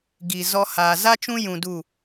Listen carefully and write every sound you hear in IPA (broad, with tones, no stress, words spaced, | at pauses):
ɡi˨ zɔ˦ haː˨za˦t͡ʃũ˦ jũ˧du˦˨